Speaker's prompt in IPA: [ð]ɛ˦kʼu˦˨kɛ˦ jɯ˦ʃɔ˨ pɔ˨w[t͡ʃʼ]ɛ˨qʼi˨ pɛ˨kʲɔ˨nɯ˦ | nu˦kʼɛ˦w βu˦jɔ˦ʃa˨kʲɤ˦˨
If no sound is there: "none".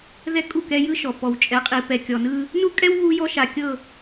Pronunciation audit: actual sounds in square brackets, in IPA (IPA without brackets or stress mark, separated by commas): ð, t͡ʃʼ